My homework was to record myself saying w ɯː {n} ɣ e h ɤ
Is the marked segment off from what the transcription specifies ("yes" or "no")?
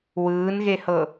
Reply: no